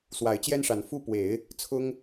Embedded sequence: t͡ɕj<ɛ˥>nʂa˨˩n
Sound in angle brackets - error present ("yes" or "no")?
no